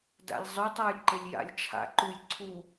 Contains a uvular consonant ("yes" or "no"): no